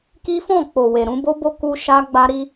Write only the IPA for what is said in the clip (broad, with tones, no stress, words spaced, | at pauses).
ki˦fɔ̃˦˨ k͡po˨we˨ ɾũ˧bo˦bo˦ ku˧ ʃa˦ɡ͡ba˦ɾi˦